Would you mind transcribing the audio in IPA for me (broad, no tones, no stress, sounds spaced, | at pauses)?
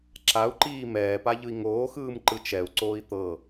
ǁ a u̯ ǃ iː m ɛː p a ʎ ɯ i̯ ŋ oː x ɯː m ǃ ɯ t͡ʃ ɛ u̯ ǀ oː i̯ t̪ ɤ